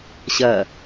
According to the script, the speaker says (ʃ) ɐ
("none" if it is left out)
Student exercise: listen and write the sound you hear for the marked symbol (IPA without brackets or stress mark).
ɕ